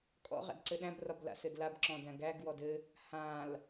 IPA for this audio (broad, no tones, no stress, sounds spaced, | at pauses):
kʼ ɔ̰ ʁ æ̰ d ǀ ɘ ɗ æ̃ b r ɒ b l a̰ s ɘ d l a b ǁ ɔ̃ d æ̃ ɡ æ ɡ w ɔ d ɘ | h ã l